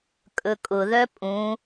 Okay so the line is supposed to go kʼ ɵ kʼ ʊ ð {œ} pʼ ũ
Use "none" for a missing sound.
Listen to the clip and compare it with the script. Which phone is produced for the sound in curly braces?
œ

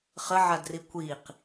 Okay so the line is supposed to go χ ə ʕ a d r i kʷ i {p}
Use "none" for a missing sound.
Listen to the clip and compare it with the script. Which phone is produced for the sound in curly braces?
q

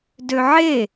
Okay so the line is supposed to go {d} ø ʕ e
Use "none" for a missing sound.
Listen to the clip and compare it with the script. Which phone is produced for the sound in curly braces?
d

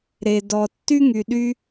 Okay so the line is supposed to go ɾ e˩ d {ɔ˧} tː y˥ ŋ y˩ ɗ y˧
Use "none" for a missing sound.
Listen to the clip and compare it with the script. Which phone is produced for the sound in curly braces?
ɔ˩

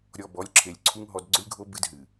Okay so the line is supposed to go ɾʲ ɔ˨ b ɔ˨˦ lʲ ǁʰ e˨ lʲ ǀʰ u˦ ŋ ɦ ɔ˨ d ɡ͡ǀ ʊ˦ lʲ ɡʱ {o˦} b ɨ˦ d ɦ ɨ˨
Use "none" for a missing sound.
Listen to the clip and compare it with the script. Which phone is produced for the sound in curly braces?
o˦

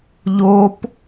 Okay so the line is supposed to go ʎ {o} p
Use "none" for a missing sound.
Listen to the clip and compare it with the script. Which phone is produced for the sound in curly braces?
o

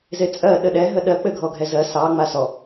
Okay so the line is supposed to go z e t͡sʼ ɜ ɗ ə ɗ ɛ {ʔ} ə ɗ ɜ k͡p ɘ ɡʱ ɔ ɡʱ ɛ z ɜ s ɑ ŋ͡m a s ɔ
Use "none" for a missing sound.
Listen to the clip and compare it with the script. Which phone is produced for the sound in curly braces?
ɦ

